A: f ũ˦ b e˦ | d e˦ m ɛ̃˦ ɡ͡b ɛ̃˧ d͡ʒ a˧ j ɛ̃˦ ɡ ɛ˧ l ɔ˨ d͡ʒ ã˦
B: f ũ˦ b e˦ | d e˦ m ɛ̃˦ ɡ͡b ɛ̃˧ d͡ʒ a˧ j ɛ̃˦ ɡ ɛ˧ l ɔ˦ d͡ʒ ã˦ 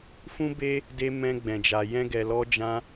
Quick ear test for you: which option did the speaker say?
B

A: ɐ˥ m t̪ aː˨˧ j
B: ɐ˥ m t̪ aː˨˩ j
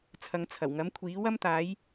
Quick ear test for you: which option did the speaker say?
A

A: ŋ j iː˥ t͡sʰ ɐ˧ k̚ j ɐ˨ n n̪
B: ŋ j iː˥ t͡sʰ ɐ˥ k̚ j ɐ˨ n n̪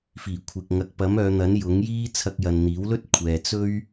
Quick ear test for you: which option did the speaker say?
A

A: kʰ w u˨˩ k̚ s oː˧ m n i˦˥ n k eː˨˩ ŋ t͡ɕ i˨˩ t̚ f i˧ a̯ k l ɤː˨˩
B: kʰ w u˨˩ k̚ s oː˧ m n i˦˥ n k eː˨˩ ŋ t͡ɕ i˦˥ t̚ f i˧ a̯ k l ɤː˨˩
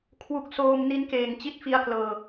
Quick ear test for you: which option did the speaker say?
B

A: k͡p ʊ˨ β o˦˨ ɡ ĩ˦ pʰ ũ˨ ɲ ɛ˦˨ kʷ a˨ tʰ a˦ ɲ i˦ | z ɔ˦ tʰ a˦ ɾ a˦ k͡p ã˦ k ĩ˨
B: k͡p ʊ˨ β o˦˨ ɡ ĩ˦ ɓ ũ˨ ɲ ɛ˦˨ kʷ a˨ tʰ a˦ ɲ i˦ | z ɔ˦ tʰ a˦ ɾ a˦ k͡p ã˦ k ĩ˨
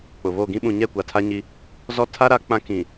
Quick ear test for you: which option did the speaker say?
B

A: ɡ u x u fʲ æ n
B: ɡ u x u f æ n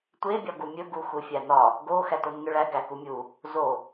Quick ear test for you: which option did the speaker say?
A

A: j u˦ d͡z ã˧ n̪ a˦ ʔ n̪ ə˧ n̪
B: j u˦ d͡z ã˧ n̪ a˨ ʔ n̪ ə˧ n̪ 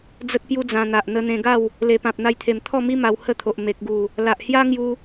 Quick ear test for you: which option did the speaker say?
B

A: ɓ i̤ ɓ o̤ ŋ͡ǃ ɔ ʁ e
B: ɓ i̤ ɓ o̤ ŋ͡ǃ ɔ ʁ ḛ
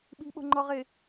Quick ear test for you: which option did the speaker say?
A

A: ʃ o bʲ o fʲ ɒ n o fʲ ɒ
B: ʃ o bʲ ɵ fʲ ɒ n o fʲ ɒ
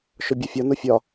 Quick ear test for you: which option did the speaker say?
A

